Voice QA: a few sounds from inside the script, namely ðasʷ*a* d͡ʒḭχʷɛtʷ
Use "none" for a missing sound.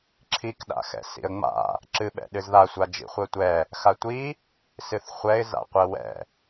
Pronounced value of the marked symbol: a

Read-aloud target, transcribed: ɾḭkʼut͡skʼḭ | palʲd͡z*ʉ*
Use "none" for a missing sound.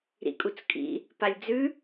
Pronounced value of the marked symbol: ʉ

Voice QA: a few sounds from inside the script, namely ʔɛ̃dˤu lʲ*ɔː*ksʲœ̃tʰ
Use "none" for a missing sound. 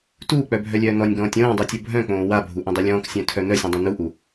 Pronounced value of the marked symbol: ɔ̃ː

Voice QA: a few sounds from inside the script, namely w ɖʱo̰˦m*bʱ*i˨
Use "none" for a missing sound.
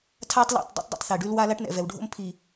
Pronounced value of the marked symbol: pʰ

